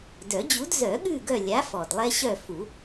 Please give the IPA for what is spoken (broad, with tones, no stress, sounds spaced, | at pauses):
d œ˨˩˦ d͡ʑ u˨˥ d z œ˨˩˦ ɠ ʉ˦˨ ɡ œ˦˨ lʲ a˨˥ f ɔ˩ d lˠ ɛ˦ ɕ œ˦˨ f u˨˩˦